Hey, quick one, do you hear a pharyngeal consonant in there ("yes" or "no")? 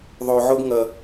yes